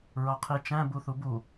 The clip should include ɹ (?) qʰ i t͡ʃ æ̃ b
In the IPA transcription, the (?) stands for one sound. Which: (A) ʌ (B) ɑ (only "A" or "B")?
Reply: B